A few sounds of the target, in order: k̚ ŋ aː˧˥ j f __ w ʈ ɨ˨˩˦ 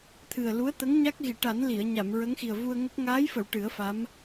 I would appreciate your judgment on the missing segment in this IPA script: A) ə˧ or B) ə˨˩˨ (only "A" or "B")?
B